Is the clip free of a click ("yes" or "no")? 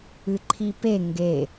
no